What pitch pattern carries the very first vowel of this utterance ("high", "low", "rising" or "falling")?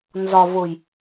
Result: low